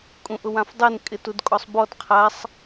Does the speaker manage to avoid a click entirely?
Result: yes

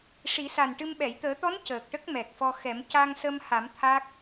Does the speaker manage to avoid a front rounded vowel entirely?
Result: yes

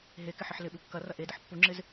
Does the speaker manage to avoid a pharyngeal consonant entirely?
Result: no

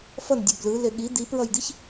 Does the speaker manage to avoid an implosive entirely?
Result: no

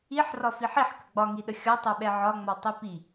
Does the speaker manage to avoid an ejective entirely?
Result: yes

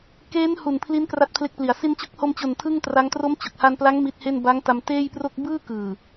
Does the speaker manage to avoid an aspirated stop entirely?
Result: no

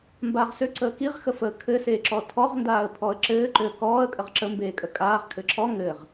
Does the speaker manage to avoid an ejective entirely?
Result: no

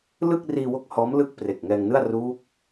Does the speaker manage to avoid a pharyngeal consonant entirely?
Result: yes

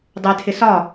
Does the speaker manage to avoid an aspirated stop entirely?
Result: no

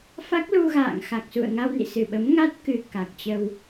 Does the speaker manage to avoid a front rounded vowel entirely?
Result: yes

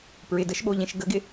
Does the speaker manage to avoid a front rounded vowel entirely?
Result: yes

